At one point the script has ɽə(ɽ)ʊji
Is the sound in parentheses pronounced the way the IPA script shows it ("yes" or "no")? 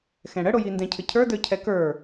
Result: yes